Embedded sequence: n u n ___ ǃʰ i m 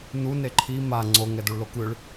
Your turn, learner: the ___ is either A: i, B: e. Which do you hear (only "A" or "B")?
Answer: B